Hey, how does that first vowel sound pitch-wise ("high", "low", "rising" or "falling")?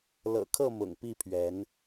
low